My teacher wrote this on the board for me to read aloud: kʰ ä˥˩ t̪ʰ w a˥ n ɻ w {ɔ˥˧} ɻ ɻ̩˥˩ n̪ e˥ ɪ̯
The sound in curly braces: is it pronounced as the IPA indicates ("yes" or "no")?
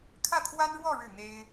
yes